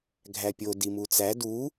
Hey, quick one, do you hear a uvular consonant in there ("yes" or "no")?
no